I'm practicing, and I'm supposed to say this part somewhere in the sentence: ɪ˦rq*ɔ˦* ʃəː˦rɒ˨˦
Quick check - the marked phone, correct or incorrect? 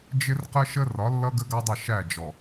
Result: incorrect